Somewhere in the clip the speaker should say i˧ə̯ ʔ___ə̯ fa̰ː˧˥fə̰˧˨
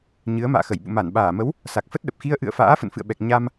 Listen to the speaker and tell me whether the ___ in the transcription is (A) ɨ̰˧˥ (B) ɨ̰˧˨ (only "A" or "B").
B